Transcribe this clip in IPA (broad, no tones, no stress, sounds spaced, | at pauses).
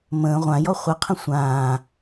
m ə̃ː ʁʷ ã j ɔ χʷ ɘ qʰ ə̃ sʷ ãː